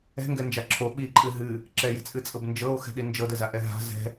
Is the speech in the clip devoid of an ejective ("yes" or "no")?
no